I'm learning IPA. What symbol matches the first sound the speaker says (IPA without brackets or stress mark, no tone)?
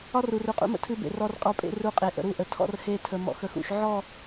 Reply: ɒ